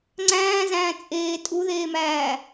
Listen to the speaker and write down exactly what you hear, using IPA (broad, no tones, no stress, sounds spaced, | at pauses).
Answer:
ŋ͡ǀ æ̃ː z æ̃ː t͡sʼ eː tʼ u ð eː m æː